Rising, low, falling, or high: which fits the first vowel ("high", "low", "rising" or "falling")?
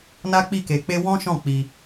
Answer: high